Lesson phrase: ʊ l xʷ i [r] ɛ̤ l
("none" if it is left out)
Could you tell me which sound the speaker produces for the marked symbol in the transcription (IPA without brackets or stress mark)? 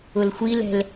l